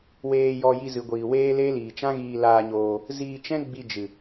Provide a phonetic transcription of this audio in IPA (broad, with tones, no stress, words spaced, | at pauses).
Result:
weː˧jɔ˧ ji˧zɨ˨ ɡʷiː˨weː˦le˦ liː˨t͡ʃã˦ɣiː˧ laː˧ɲoː˧ | ziː˧t͡ʃɛ̃˦ ɡ͡bi˧d͡ʒɨ˨